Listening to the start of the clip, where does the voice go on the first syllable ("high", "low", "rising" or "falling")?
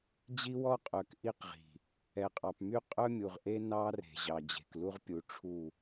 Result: high